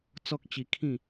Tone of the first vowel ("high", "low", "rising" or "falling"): high